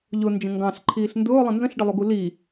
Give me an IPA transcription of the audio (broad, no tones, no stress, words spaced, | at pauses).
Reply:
ʎʊnd͡ʒə̃ ŋɡɑ̃ɬǃʰiːɬ ndʊːlˠə̃ nzə̃ɬɖəlˠuɡu li